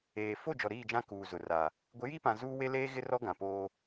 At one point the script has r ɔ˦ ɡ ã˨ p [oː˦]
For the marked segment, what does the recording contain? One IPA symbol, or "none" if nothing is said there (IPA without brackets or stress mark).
oː˦